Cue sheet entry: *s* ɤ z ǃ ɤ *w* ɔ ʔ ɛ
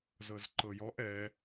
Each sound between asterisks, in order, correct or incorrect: incorrect: z, incorrect: j

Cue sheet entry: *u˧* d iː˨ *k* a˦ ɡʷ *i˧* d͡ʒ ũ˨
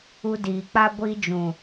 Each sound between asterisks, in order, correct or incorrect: correct, incorrect: k͡p, correct

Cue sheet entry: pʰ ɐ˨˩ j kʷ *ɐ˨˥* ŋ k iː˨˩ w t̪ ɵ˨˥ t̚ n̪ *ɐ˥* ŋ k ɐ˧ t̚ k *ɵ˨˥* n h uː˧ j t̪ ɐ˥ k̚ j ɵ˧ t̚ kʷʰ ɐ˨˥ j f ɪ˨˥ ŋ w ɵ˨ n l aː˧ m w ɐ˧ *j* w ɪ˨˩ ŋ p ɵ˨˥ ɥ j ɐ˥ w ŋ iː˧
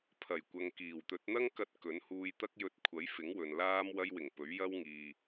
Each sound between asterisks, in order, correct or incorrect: incorrect: ɐ˨, correct, correct, correct

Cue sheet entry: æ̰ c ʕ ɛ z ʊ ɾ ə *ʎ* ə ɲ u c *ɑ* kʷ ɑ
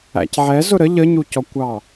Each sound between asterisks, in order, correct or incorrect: correct, incorrect: ɔ

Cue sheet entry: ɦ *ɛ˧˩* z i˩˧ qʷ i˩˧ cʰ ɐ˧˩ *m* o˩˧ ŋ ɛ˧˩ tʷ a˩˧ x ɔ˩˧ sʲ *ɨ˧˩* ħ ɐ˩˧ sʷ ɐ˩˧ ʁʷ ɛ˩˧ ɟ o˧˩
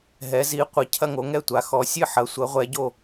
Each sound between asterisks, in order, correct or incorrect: incorrect: ɛ˩˧, incorrect: ŋ, correct

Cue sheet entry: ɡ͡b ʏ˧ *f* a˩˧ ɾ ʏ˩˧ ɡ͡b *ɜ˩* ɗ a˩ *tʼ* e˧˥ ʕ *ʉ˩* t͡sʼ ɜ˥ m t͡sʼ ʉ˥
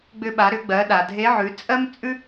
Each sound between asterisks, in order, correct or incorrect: incorrect: ɓ, incorrect: ɜ˩˧, incorrect: dʱ, incorrect: ʉ˩˧

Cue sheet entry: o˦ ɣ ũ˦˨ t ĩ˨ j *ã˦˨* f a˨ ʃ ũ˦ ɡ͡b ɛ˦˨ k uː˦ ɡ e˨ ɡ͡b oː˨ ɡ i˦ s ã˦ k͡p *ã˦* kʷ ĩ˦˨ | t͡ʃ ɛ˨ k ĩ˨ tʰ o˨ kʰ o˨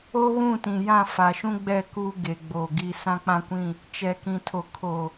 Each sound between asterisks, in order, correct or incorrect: correct, correct

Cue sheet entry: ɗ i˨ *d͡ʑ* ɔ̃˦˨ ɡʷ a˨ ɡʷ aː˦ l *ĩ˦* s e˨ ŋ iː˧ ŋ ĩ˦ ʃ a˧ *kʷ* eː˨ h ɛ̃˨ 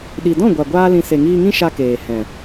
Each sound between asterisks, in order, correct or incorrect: incorrect: d, incorrect: ĩ˧, incorrect: k

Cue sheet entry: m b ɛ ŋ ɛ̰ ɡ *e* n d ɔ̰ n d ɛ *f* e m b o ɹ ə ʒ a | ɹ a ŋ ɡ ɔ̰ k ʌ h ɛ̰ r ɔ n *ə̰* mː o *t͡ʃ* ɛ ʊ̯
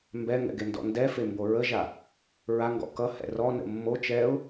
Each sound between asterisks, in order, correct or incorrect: correct, correct, correct, correct

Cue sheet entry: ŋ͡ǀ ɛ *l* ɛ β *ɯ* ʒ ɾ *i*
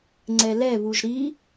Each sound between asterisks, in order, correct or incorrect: correct, incorrect: u, correct

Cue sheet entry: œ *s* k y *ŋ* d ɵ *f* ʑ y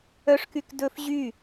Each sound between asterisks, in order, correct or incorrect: incorrect: ʂ, incorrect: k, correct

